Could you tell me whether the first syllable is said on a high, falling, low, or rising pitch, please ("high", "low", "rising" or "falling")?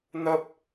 high